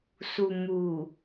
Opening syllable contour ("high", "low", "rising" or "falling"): low